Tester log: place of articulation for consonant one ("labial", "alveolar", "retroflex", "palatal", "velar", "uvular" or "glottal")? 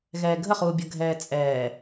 velar